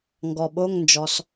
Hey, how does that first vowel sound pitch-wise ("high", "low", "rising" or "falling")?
low